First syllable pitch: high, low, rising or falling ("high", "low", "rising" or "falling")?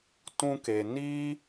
high